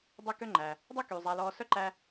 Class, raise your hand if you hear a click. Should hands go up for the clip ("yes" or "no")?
yes